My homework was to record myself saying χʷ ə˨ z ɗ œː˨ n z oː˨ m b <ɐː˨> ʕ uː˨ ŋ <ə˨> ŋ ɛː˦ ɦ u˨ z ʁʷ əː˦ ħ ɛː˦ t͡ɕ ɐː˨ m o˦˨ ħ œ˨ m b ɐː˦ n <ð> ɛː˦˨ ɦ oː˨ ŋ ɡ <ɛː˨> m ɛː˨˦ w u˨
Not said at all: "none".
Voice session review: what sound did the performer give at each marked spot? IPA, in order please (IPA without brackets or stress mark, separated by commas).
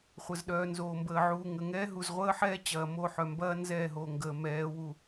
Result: əː˨, ə˨, z, əː˨